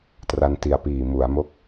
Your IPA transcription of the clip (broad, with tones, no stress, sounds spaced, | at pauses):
t r a˧ n t i˨˩ a̯ p iː˨˩ m u˩˦ a̯ m o˥˩ k̚